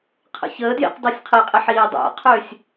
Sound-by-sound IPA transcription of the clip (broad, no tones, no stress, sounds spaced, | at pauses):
qʰ ə̰ ç əː d j ḭ q dˤ y sʲ qʰ i qʼ i ħ iː dˤ a̰ qʰ ʏː sʲ